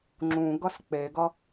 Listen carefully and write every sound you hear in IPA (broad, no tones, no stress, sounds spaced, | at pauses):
ŋ͡ǁ ũ ɡ ʌ s k͡p e ɡ ʌ